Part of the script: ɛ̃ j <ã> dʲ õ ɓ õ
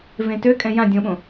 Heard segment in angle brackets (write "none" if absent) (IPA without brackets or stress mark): ã